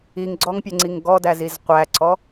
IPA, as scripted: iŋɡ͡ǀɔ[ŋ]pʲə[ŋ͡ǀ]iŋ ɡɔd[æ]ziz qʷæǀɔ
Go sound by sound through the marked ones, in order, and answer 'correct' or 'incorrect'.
correct, correct, correct

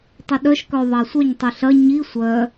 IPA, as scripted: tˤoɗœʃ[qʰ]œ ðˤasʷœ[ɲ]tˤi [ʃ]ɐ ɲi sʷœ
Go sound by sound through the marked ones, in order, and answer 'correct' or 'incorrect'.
incorrect: k, correct, incorrect: ɬ

